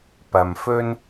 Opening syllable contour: low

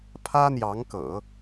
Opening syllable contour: high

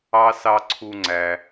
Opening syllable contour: high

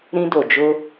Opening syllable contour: high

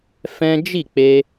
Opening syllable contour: high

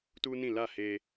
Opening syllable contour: high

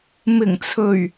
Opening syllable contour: low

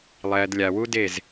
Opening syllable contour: low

